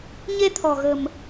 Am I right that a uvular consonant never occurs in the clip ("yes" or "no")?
yes